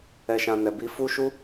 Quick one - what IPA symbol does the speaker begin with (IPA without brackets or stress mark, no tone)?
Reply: ɛ